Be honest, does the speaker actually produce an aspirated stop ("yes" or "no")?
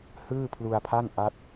yes